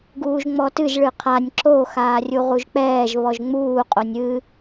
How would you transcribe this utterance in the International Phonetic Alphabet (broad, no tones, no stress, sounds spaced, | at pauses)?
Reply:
ɡ uː ʒ ŋ͡m ɔ t ɨ ʒ ɭ ɨ qʰ a nʲ ǁ o x aː rʲ u ʁ u ʒ k͡p ɛː ʒ β ɔ ʒ ŋ͡m uː qʼ o nʲ ɨ